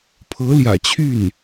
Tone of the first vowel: rising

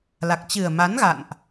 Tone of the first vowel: low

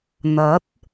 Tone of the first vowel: rising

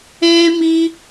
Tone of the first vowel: high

